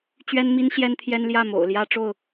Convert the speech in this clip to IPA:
t͡ɕɥɛ˦nmi˦n ɕjɛ˦nt̪ʰjɛ˦nljä˥˨ mo̰˨˩ʊ̯ljä˦ ʈ͡ʂo˥˨ʊ̯

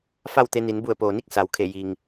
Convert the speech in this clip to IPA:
fa˥˨wt̪e˧ni˩˧n bu˧˩ə̯poː˩ni˥˨k̚ sa˩˧wkʰe˧˩ ji˩ŋ

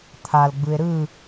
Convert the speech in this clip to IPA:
t̪ʰalɡ͡bɯe̯ ɾɯ

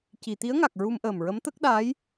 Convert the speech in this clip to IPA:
ci˨˩˨t̪i˧˥ə̯ŋa˨˩k̚ ɹu˧mʔəː˨˩mɹə˧˥m t̪ə˦˥k̚ɗaː˧˥j

